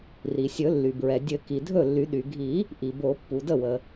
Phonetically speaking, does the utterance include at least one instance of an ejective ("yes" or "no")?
no